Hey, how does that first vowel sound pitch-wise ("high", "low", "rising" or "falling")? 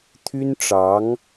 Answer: high